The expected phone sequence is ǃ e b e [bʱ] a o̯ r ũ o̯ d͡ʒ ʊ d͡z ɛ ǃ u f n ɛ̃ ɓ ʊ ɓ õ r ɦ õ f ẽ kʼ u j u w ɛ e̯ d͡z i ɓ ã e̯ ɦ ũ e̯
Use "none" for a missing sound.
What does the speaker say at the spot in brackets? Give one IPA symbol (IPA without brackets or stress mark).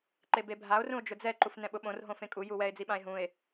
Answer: bʱ